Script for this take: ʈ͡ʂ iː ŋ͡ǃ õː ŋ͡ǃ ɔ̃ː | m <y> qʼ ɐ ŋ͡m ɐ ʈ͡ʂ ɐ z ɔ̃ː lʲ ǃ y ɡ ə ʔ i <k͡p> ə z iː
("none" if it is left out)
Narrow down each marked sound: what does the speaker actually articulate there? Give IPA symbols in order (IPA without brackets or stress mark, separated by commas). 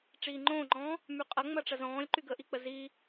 y, k͡p